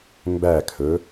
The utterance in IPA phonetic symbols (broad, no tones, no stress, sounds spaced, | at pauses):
m b æ kʰ ɵ